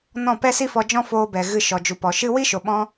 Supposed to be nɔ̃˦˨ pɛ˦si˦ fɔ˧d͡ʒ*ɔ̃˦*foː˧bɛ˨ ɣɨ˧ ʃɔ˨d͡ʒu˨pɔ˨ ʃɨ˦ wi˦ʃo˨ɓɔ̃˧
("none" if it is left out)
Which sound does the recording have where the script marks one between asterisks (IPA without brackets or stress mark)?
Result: ɔ̃˦